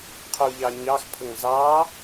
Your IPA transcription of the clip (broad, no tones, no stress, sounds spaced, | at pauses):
qʰ u ʎ ɑ ɲ ɑ x pʰ ə ŋ z ɑ